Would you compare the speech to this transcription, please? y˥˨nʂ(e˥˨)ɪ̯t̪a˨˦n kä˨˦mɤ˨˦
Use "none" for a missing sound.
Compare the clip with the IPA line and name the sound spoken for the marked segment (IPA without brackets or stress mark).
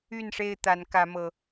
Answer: e˥˨